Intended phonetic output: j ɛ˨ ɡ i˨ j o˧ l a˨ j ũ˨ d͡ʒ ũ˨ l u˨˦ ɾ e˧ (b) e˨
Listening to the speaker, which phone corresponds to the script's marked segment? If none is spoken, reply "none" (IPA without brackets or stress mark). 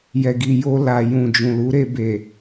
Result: b